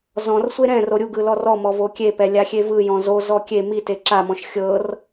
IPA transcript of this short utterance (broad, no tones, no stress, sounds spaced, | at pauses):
z ɔ̃ r sʷ e ɾ ɛ̃ r o ɾʲ u ɡ ɯ l ɔ r ɔ m ɔ v o kʲ e p ɛ lʲ a xʲ e v ɯ j ɔ̃ z o z ɔ kʲ e m i t e ǁ a m ɔ̃ ʃ xʲ ɤ r